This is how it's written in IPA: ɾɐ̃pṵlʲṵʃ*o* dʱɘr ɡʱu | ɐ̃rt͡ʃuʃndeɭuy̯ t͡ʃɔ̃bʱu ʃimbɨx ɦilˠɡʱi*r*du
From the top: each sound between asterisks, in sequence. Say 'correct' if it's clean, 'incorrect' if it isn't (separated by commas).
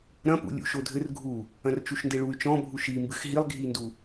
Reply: correct, incorrect